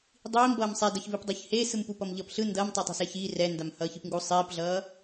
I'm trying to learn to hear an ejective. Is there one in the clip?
no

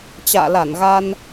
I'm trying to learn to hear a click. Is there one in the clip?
no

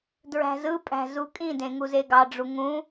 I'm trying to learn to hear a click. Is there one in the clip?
no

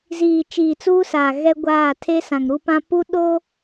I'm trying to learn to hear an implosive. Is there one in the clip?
yes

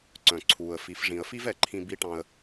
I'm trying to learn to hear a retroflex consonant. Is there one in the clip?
yes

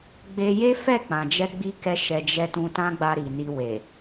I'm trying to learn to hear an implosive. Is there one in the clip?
no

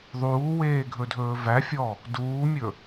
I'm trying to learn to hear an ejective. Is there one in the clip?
no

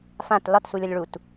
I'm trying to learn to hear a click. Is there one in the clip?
no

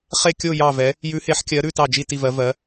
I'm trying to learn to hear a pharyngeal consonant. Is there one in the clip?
yes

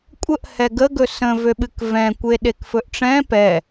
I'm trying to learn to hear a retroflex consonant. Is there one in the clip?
yes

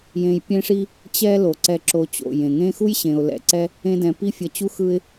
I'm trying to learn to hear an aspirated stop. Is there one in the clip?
no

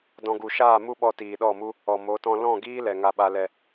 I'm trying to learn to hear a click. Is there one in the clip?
no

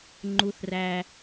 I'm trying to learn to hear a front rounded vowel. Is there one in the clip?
no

